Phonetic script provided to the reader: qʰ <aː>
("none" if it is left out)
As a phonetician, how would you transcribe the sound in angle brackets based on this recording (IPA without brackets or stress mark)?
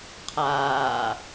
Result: aː